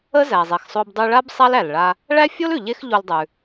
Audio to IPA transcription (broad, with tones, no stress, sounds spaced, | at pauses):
ə˥ z æ˩ zˤ e˩ x sˤ o˧ b dˤ ʉ˧ ɭ a˥ b sˤ a˥ l æ˩ l ɭ a˧ | ɭ æ˥ fʲ o˥ l ʉ˩ ʎ e˥ x ʎ o˧ l dˤ ʉ˩